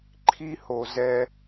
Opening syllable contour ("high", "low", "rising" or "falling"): high